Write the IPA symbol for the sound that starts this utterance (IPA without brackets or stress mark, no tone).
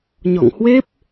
ɲ